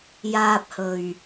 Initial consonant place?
palatal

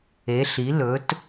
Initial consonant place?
alveolar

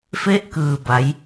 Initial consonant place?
labial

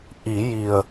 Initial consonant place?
glottal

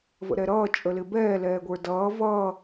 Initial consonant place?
labial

